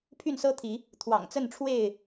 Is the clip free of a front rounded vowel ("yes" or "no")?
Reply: no